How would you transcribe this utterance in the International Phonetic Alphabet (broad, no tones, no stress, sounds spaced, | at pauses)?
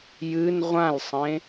j ɨ n ʁʷ ã l sˤ ẽ